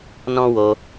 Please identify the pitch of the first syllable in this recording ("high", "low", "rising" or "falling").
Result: high